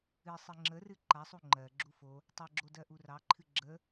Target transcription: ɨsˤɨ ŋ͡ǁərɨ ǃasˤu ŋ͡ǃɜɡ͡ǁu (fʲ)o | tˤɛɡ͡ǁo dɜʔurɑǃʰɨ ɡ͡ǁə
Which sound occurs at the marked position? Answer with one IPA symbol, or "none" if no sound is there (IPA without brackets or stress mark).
f